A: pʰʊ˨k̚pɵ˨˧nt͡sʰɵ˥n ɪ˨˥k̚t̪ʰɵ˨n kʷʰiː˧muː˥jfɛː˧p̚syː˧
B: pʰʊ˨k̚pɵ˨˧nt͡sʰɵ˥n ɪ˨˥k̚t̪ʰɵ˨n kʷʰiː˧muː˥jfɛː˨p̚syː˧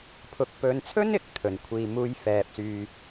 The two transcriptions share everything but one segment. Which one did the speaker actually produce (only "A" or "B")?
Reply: A